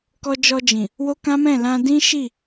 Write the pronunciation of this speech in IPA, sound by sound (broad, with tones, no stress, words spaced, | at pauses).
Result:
kɔ˧d͡ʒɔ˧d͡ʒĩ˨ | wo˦kã˦mɛ̃˦˨ lã˧dĩ˦ʃi˦˨